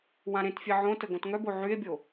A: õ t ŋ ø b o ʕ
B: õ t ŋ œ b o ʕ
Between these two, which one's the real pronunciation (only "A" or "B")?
B